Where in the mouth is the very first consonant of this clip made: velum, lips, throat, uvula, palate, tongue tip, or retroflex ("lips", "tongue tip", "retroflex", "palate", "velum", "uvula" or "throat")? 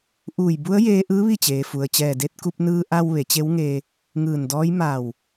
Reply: throat